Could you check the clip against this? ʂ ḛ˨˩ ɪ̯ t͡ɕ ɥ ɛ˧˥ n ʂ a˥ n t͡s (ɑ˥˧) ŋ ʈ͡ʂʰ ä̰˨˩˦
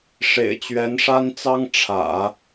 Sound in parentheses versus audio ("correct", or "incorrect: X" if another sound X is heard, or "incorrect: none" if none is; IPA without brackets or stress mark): incorrect: ɑ˥